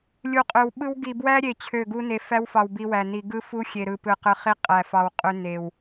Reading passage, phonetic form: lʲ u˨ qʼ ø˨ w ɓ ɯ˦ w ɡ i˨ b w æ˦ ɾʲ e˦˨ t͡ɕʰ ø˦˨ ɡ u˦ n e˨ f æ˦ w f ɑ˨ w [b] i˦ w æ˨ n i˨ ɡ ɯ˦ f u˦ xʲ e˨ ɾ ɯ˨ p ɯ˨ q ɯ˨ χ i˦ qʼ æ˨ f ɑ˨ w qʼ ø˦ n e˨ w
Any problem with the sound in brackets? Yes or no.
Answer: no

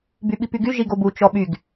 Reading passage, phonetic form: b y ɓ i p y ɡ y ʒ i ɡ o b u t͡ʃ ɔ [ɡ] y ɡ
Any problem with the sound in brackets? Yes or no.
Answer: yes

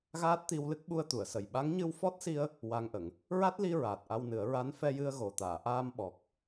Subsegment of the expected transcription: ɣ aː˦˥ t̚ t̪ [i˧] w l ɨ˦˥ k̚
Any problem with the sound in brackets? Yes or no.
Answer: no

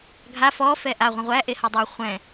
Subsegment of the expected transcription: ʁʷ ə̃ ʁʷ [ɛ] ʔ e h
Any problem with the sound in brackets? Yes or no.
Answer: yes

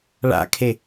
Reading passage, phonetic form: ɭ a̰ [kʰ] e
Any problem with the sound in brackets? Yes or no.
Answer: no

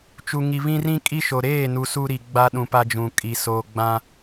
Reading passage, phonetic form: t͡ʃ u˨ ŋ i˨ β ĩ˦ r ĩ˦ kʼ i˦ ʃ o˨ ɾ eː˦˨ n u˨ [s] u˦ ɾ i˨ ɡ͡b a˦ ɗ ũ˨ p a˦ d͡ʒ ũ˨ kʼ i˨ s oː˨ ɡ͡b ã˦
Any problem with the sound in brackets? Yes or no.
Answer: no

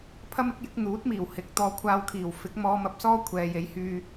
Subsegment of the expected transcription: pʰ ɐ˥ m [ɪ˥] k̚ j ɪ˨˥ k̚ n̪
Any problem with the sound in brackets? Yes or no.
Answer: no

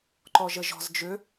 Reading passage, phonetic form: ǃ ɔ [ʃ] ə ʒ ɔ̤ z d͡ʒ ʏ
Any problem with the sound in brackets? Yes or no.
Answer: yes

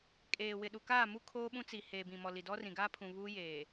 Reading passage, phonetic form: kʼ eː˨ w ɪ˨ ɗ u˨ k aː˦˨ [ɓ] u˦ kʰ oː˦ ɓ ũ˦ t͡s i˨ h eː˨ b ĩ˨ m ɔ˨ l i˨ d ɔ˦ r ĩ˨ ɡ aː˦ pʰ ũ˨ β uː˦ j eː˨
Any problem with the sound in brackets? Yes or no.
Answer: yes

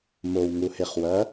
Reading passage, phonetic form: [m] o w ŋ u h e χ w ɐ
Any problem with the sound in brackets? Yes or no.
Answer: no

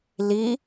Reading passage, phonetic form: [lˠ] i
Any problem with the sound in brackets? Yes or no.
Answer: yes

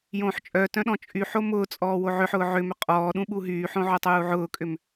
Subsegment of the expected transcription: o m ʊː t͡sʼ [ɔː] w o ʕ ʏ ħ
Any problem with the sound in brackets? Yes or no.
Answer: no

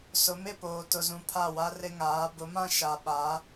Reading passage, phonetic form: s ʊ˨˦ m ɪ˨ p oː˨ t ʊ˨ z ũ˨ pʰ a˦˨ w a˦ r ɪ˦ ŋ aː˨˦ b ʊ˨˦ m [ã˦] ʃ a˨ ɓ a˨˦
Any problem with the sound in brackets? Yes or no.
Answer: no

